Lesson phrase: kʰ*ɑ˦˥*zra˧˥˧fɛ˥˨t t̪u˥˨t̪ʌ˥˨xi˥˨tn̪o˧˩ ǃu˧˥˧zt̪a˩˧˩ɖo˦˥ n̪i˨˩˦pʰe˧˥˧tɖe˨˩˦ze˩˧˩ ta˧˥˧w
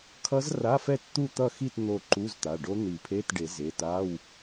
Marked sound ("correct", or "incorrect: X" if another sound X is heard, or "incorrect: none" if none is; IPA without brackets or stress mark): incorrect: ʌ˦˥